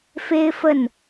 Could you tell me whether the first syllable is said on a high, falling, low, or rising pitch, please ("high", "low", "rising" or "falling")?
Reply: high